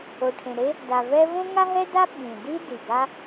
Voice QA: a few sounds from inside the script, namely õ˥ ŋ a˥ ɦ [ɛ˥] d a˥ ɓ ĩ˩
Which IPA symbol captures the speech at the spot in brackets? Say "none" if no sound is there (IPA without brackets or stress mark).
ɛ˥